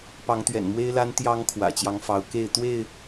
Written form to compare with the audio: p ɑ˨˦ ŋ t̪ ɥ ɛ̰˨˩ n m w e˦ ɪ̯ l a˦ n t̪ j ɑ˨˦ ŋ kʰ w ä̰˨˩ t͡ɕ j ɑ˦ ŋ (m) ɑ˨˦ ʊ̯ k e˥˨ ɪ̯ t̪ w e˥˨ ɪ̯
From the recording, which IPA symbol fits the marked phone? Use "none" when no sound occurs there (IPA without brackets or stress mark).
f